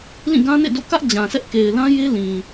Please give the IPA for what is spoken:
lĩ˦˨ɡã˦nḛ˦˨ do̰˦˨ kä˦ʔ d͡ʑã˨sʰɛ˦ʔ ke˨ɪ̯lã˦ je˦lĩ˨

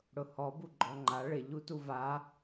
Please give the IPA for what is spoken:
ɽʊhɔ buɡ͡ǃɔŋ͡ǃa ɭɪ ʎutuva

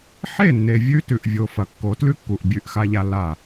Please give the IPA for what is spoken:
ħe˦˨nːe˨ vʲʉ˦tʉ˨ʔvʲo˨ fɐ˨ kːo˨˦tlʉ˦kːu˨ʔ bʲʉ˦˨ʔxa˦ʎa˦ la˦˨

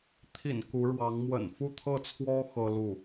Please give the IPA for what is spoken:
t̪ʰḭ˨˩n ku˧˥ɻwɑ˧˥ŋ mwə̰˨˩nfu˥˧t̪ʰɤ˥˩t͡sʰwɔ˥ xɤ˥lu˥˩

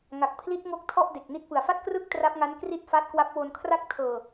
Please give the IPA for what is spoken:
ŋa˨˩k̚pʰli˦˥t̚ ŋo˦˥k̚ tʰɔ˥˩ʔde˨˩k̚ni˦˥t̚pɯ˨˩a̯ fa˥˩t̚krɯ˥˩k̚ tra˦˥p̚ŋa˦˥nkri˥˩t̚ fa˦˥t̚kwa˦˥p̚wo˧n kʰra˦˥k̚tʰɤː˨˩

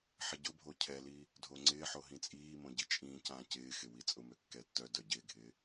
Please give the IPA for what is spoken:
ħɪɟʊbʱo cʰɛli | dʱoŋ͡ǀɪːħo ɦĩt͡sʼiːmõ ɟit͡ʃʼĩːcãː cɪːxɪ wit͡sʼʊmø kːɛtːœdœ ɟɪːɡʱɪː

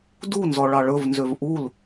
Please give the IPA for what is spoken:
dunzɔ ɭɑɭɵvnzøv ʔul

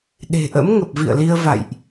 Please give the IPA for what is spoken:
ɗe̤˨˩ʔə̰˧˥mŋə˨˩p̚vḭ˧˨ə̯ li˧ə̯va̰˧˨jʔ

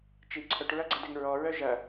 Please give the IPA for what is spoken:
t͡ʃi ǀʰœʈɹɐɡ͡ǀɐdɪŋ ɹɔɹœ ʒɐ

